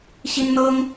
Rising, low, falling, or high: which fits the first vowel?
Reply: high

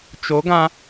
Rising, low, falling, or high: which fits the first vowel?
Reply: rising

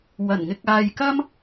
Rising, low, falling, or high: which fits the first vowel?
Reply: low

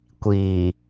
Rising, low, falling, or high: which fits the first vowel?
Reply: low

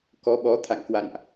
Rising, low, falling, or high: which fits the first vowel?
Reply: rising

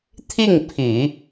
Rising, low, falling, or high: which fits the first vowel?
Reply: falling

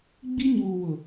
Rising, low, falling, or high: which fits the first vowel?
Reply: high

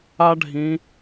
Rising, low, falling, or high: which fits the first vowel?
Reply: high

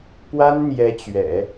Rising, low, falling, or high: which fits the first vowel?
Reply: high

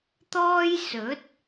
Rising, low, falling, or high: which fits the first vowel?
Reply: high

